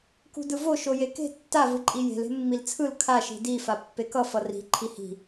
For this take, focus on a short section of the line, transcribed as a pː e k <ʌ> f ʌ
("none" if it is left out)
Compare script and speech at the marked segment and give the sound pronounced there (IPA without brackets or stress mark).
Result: ʌ